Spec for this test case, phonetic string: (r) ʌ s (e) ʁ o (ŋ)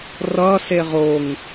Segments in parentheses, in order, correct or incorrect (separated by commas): correct, correct, correct